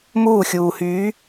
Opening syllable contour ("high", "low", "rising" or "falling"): falling